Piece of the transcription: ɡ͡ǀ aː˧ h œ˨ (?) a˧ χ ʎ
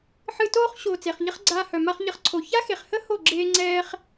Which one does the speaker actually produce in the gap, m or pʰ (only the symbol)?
m